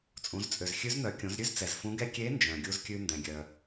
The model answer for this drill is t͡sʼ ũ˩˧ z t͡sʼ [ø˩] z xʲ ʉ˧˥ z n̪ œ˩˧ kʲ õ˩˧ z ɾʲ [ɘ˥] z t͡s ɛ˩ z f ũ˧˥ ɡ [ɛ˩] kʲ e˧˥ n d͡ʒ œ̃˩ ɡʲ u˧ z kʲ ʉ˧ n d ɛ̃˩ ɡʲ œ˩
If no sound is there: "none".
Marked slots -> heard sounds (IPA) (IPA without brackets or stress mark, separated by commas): ø˩, ʉ˥, ɛ˥